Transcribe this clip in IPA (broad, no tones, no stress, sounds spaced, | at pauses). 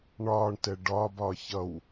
ɳ ɒː ɳ t ɛ ɖ ɒː b ɒː ç ʌ w